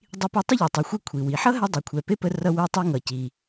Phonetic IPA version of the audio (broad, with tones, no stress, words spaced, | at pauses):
dˤi˧pe˧ tˤə˥ʎi˩tˤi˩xʷe˧ kʷʰi˩wi˩ ħʌ˥ ɦɛ˧dˤi˩kʷʰɛ˩ pe˥pə˧ rʌ˧ wɛ˧tˤi˧ŋʌ˩ ci˩